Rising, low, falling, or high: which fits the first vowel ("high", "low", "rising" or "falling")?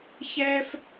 high